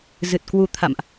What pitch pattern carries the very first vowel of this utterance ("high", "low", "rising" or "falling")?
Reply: low